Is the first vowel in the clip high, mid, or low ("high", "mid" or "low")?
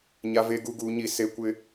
low